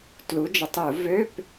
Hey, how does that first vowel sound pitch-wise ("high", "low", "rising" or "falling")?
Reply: rising